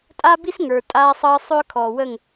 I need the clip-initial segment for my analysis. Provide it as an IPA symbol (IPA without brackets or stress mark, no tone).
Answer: tʼ